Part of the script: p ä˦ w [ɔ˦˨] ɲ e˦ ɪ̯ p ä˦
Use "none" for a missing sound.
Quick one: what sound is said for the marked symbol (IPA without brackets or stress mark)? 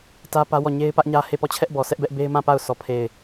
ɔ˦˨